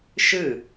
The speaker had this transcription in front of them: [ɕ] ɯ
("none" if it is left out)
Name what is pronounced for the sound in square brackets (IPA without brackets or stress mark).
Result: ʃ